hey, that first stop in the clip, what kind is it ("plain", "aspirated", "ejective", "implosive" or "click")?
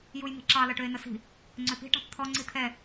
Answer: click